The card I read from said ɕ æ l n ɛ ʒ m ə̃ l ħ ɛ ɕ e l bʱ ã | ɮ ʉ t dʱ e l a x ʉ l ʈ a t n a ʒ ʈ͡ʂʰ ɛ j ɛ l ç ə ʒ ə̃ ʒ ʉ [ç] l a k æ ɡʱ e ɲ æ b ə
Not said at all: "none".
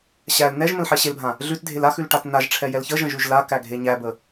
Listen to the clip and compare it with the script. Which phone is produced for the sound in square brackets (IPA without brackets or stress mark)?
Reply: ʒ